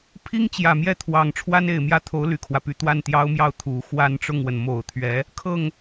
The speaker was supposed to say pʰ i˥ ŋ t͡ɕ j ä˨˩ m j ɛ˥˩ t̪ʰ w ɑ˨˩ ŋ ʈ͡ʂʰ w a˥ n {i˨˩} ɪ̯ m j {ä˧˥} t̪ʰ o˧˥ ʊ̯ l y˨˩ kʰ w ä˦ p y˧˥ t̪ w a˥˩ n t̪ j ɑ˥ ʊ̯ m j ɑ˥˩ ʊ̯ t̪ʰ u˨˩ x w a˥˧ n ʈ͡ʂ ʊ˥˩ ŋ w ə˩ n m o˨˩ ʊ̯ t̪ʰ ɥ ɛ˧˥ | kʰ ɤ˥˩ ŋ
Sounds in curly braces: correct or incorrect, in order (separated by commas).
incorrect, incorrect